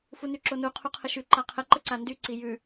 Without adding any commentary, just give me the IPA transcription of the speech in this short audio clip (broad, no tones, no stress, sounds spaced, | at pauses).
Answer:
f u n y ǁ o n u qʰ u qʰ ə ʃ y ǃ a qʰ ə ǃ ə ǀ a n d y ǀ i j ʉ